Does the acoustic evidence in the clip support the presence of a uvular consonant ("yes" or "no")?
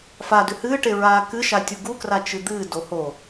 no